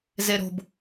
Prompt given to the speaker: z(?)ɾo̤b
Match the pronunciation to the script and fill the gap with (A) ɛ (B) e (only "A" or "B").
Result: B